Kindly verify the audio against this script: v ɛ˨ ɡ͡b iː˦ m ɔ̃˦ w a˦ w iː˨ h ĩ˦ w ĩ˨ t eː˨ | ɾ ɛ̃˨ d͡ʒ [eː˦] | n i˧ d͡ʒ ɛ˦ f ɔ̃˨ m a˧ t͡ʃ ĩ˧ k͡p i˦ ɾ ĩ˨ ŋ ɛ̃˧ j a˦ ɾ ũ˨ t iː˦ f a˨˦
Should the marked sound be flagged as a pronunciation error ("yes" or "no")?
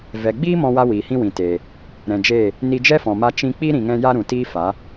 yes